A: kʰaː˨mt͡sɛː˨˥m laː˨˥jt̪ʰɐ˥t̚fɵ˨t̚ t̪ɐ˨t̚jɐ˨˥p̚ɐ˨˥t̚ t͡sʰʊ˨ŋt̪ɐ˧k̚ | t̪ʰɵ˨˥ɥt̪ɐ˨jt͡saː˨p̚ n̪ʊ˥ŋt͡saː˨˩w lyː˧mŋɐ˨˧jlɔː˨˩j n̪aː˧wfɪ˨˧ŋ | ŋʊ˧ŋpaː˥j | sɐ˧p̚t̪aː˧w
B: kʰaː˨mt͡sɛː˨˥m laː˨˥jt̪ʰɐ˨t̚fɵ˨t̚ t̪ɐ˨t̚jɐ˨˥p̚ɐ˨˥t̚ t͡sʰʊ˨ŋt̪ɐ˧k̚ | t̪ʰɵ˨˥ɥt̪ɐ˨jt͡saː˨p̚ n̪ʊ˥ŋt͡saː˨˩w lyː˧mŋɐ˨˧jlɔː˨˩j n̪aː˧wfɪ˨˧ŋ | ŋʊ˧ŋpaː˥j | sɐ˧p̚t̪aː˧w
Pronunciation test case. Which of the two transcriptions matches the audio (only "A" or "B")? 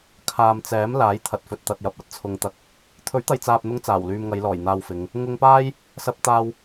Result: B